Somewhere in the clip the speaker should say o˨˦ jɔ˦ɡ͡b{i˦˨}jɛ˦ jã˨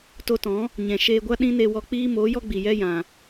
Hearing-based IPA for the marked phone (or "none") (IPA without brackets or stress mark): i˨